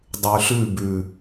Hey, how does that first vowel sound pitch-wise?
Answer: low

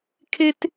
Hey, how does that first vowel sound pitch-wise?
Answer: high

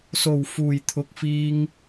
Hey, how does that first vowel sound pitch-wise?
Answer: low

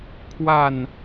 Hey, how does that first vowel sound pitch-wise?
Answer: falling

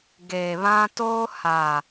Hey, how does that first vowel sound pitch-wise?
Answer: low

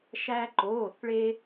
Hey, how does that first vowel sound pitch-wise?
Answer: high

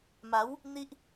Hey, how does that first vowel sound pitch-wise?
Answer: rising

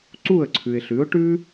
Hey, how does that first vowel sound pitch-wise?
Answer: falling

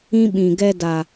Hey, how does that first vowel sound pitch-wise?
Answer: high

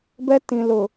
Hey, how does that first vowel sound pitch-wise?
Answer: high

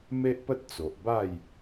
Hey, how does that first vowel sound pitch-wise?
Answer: high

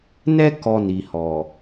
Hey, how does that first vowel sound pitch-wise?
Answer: high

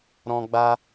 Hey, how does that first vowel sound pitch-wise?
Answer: high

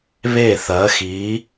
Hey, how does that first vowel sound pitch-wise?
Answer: falling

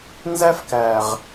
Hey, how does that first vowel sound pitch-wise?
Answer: high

